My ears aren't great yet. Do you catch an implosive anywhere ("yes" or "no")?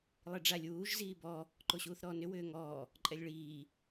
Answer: no